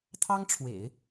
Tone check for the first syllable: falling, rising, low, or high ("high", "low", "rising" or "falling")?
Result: high